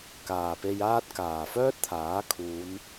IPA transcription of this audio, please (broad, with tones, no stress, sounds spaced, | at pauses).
k aː˨˩ p e˧ j aː˥ t̚ k aː˨˩ f œː˥ t̚ t̪ʰ aː˨˥ kʰ uː˨˧ n